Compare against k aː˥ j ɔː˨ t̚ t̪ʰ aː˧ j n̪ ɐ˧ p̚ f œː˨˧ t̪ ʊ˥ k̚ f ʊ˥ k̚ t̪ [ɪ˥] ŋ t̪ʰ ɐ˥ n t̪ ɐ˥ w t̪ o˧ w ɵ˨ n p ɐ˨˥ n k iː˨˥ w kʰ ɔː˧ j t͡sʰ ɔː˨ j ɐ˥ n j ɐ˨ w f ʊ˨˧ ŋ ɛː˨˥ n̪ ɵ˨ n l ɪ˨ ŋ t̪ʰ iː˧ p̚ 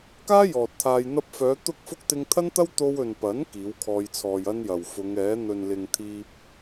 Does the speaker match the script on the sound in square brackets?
no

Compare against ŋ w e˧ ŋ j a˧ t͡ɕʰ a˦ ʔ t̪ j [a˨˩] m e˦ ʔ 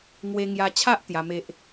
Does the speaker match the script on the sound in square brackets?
no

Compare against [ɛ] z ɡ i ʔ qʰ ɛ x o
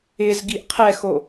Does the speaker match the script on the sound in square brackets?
no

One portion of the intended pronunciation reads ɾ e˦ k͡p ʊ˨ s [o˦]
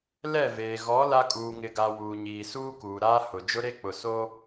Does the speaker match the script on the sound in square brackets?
yes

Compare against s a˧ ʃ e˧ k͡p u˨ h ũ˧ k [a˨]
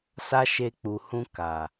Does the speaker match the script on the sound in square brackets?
yes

